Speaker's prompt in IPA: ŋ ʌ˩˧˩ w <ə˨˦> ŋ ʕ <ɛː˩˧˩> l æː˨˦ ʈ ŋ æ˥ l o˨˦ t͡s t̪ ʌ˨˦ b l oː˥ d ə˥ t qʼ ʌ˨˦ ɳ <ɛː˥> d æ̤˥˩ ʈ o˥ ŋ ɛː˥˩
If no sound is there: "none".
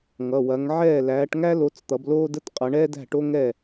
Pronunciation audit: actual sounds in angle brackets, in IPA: ɐ˨˦, ɛː˥˩, ɛː˥

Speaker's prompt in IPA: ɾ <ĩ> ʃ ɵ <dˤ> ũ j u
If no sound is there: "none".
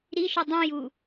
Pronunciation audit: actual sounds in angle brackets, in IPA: i, dˤ

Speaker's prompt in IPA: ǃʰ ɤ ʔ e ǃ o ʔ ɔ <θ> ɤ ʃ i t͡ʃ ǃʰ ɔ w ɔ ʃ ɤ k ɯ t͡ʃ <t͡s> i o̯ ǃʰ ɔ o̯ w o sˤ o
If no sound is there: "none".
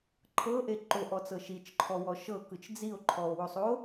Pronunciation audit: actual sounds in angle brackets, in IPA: t͡s, d͡z

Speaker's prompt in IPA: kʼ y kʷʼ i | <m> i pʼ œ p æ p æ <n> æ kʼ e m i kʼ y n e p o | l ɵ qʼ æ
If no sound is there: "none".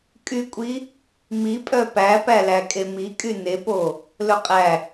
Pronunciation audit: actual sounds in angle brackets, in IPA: m, l

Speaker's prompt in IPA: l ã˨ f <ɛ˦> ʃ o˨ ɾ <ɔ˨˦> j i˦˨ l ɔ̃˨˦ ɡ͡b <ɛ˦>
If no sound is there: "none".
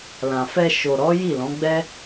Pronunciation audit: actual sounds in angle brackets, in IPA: ɛ˧, ɔ˨˦, ɛ˦

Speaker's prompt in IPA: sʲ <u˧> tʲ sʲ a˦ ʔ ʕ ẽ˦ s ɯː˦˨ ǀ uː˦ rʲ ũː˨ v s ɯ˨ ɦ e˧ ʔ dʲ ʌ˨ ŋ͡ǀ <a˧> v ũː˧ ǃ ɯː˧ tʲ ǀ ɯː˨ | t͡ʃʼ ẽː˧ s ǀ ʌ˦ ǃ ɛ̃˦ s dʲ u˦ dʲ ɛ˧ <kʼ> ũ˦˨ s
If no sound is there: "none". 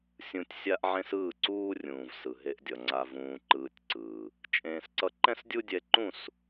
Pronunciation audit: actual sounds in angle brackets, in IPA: ũ˧, a˧, ǃ

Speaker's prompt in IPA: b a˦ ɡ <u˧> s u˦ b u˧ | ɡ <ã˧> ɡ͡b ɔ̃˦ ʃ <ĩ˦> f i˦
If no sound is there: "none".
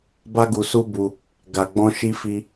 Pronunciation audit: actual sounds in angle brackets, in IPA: u˧, a˧, i˦

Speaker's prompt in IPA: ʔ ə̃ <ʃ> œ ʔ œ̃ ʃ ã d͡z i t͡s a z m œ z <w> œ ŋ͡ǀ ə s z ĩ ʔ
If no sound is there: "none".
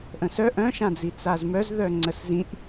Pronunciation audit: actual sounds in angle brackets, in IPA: s, ð

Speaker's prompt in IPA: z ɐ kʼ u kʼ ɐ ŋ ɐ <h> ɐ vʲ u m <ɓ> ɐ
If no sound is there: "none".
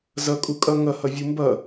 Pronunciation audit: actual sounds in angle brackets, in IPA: h, b

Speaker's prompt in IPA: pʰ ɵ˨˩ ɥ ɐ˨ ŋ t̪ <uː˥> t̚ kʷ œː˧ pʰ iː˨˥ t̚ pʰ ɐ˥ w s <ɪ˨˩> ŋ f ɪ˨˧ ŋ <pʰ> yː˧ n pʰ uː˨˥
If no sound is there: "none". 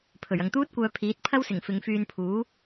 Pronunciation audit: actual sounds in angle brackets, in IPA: uː˥, ɪ˨˩, f

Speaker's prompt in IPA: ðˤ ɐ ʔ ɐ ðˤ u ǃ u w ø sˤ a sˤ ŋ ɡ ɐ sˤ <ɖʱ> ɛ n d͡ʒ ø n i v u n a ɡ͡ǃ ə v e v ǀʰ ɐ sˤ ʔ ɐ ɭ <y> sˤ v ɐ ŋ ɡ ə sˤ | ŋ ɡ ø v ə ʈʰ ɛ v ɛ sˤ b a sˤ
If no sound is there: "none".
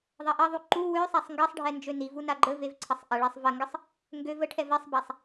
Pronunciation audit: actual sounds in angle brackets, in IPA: ɖʱ, e

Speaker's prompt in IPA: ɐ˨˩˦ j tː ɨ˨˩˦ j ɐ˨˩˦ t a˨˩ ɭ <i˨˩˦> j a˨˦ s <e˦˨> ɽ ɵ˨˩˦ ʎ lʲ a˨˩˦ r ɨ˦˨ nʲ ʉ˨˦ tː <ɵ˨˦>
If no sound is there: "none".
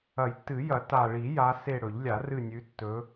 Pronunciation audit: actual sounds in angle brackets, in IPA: i˨˩˦, e˦˨, ɵ˨˦

